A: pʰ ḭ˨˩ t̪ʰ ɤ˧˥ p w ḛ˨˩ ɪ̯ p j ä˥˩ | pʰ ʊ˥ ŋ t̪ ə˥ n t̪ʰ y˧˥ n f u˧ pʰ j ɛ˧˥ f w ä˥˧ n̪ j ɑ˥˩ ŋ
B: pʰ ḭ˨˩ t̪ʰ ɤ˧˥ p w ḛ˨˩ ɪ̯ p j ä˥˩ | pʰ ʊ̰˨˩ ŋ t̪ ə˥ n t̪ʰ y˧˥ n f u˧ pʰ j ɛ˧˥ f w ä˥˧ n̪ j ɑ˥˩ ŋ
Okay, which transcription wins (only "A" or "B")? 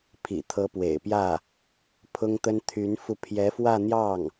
A